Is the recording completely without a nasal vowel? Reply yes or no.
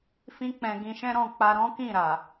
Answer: no